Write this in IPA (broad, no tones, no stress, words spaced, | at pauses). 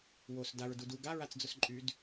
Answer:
wos daɹ dudu ɡa ɹat͡sd͡zʊsǃʼyd